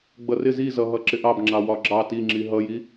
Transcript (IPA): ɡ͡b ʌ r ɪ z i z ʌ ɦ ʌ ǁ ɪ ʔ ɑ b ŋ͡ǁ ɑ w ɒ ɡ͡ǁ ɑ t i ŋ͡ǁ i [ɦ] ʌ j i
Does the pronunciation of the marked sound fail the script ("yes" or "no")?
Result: no